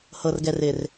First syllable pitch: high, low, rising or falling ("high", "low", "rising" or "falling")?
low